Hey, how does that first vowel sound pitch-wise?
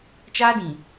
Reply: high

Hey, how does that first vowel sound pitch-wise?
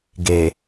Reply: low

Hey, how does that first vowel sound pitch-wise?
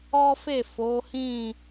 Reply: high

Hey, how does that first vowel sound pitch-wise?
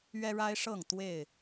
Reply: high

